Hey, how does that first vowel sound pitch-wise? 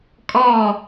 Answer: falling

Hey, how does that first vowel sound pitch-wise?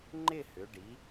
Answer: falling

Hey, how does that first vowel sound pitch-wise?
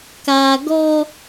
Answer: low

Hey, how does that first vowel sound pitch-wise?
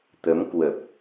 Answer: rising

